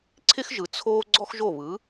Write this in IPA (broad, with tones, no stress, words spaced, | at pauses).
ǀʰɪ˥xʒɯ˩ t͡sʰoː˥ ɡ͡ǀɔ˥xʒo˥˩βɯ˩˥